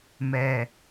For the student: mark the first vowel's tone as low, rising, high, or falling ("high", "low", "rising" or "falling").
low